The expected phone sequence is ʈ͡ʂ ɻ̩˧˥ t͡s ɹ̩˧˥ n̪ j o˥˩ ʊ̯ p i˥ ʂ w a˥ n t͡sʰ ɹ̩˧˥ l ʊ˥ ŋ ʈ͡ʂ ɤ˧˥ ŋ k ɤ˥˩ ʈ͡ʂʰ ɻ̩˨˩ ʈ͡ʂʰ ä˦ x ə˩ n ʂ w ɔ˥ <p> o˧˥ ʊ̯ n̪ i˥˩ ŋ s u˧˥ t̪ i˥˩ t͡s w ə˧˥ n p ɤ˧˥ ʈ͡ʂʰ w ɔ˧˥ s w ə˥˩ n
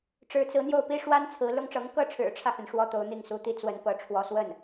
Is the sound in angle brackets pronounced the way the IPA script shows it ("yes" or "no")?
no